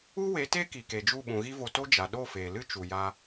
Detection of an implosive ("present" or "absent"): present